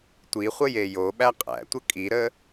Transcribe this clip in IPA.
tʷ i χʷ ə j e j o ɓ æ qʼ æ̰ tʷ ə kʼ i ɾ ə

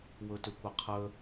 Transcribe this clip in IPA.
w ɵ t ʏ kʷ ə qʰ ə

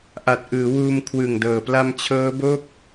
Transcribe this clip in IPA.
ʔ a˨˩ t̚ ʔ ɯː˩˦ w uː˧ m kʰ w ɯ˨˩ ŋ d ɤː˨˩ p l a˧ m t͡ɕʰ ɤː˦˥ b o˥˩ k̚

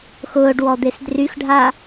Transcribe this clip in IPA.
x ʊː ɖ w ɔ d̪ e s d r y x ɖʱ a

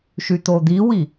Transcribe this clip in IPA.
ʃ y t̪ o d̪ i w i

